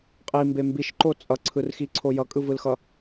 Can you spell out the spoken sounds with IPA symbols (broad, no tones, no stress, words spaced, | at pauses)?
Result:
qʼimbe mbiʃǃo t͡sʼʌǀʰɯrxiǀʰo jʌkʼɯvɯlxʌ